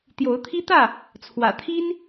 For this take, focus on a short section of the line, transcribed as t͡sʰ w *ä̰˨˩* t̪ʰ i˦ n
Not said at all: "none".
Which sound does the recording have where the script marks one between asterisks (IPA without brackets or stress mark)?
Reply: ä̰˨˩